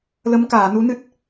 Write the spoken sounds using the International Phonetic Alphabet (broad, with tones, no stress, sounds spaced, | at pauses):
l ə˧˥ m k aː˨˩˨ n u˧˥ n ɨ˦˥ t̚